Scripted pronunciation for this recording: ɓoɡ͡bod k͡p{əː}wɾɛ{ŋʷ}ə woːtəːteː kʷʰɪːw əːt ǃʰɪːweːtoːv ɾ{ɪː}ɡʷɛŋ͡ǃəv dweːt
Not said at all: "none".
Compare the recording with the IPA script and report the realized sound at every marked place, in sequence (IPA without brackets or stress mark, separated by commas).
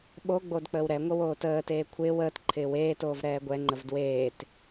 əː, ŋʷ, ɛː